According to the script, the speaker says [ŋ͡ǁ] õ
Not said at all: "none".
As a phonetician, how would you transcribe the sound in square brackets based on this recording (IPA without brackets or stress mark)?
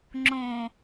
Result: ŋ͡ǁ